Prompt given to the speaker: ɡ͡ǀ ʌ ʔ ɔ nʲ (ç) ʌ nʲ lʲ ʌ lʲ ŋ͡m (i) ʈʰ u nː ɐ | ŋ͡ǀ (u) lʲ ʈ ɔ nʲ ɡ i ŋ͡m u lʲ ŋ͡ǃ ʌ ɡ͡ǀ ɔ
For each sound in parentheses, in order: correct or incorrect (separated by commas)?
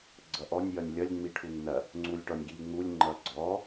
incorrect, correct, correct